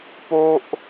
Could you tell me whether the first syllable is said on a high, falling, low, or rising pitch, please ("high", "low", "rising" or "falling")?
high